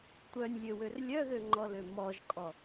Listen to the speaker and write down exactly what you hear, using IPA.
tʷ œ nʲ lʲ ø w ø r lʲ œ ð ø ŋ͡ǃ ɔ l ø m ɔ ʒ kʼ ɔ

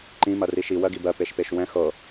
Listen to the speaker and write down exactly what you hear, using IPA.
ǃ ĩ m ɐ r i ʃ i w ɜ ɡ i b ɜ p e ʃ p e ʃ w ɛ̃ x ɤ

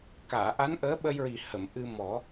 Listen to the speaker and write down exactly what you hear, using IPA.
k aː˨˩˨ ʔ a˧˥ n ʔ əː˧˥ ɓ ə˧ j ɹ i˨˩ h ə˨˩˨ m ʔ ɨ˧ m ɔ˨˩˦

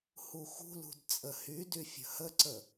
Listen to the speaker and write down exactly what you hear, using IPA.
h u x ṳ l ṳ d t͡sʼ ə h y d y fʲ ə̤ h ə ǀ ə

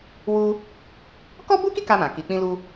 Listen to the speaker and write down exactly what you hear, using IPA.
w u˧ | k ɔ˦ b u˦ k i˦ k a˧ m ã˨ k i˨ k͡p ĩ˧ l u˧

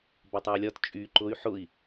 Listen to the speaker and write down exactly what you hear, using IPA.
b ɒ tˤ a u̯ lʲ ɒ t t͡ʃʼ y ǃ ʊ y̯ ħ ʊ i̯

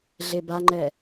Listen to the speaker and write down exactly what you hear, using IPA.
ɮ e b a ŋ͡ǃ ɛ

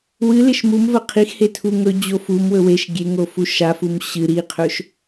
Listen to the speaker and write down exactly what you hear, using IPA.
w ɨ l e ʃ m u m v ɐ qʰ i x h e tʰ u ŋ ɵ d͡ʑ o f u m w ɵ w e ʃ ɡʲ e ŋ o f u ʃ a f u m ɕ ɨ ɾ i qʰ ɵ ʃ

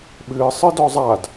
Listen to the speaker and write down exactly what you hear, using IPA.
ɓ ɨː sˤ ɨ d ɔ zˤ a d

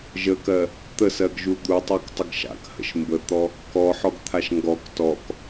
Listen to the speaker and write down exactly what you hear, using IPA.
ʒ ə k ɜ | t̪ ə s ɜ ɡ ʒ u d̪ u tˤ ɜ k tˤ ə ɡ ʃ a̰ k h ə̰ ʃ m b ə t̪ ɔ | k ɔ ħ ɔ ɡ t̪ʰ a ʃ ŋ ɡ ɔ k t ɔ k

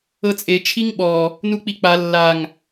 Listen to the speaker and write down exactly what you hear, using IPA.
ɤ t͡sʼ e t͡ʃʰ i ŋ ɓ ɔ | n u k͡p i k͡p a lː a ŋ

